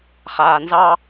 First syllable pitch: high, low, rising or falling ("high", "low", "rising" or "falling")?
low